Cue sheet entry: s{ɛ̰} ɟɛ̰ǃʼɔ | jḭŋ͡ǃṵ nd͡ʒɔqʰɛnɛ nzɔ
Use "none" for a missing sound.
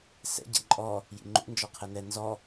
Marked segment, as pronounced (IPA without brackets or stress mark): ɛ̰